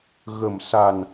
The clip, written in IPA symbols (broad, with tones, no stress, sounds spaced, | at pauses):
ɣ ə˨˩ m s a˨˩ n